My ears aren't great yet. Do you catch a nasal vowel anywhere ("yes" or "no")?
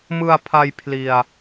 no